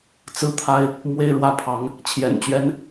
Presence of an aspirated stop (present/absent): present